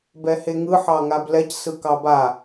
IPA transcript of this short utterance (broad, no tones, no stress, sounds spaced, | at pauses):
b ɛ h e ŋ ɯ ħ ɑ ŋ a b l ɛ c s ɯ k ɑ b a